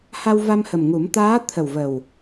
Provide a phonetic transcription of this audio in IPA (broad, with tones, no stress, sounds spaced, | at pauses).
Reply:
h a˧ w v a˧ m h ə˨˩ m ŋ u˨˩˦ m t̪ aː˧˥ t̪ʰ ə˨˩ w v ə˨˩ w